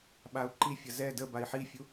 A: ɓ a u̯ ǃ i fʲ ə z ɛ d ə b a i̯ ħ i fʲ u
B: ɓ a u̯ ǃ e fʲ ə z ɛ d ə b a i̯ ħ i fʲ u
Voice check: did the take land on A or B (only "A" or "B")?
A